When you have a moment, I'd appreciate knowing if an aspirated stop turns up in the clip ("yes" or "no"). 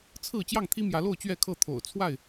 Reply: yes